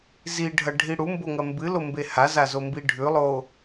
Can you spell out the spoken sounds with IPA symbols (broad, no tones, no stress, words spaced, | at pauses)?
ziɖʱɐɖʱi ɽumboŋɐ mbɨlombe hazazombi ɖʱʉlˠo